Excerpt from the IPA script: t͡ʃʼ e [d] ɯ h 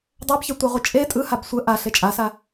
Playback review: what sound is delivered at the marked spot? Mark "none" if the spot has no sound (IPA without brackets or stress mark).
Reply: tʼ